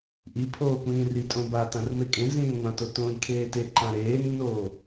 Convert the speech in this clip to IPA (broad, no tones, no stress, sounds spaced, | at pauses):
ʔ i pʰ oː kʷ ĩː r i tʼ õ b a t ã r m e kʼ ẽ z ĩː ŋʷ ã t o t õː j kʰ eː t e ǃ ã ɾ eː nː oː